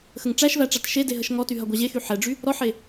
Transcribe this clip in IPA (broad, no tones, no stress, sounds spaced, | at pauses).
x ə ŋ ʈ͡ʂ æ ʃ v æ ʈ͡ʂ a t ʃ e d e ɦ ə ʃ ŋ ɔ t y ɦ ɐ ɡʷ a ʑ e x y ħ ɛ ɖ͡ʐ y | ɾ ɔ ħ e